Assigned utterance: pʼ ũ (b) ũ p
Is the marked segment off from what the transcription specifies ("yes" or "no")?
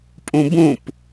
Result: no